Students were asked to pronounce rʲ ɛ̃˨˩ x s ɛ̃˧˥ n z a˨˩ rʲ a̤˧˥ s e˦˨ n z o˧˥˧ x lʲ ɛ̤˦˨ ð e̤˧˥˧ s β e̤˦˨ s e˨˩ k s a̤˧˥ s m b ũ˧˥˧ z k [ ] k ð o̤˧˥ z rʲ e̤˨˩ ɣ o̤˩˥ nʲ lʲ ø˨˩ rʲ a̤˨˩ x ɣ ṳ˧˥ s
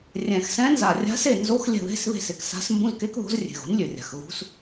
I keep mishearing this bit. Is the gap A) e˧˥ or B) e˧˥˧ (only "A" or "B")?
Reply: A